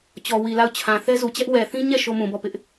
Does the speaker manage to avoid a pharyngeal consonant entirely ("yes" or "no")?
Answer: yes